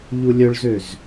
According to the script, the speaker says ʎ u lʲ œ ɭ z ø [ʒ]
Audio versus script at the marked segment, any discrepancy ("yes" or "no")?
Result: yes